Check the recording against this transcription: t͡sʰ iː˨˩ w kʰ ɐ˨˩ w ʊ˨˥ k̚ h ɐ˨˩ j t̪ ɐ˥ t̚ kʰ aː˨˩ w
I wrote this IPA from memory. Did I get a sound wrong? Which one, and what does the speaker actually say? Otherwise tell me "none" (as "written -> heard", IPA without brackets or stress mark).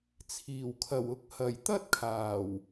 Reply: none